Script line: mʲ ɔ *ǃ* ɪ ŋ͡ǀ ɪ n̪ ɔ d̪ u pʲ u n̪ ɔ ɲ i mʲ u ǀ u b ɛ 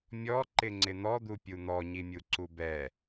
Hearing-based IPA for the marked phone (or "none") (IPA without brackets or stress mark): ǃ